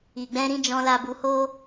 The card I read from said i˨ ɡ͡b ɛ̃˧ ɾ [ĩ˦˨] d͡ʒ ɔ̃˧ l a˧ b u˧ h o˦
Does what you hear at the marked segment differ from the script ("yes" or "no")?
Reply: yes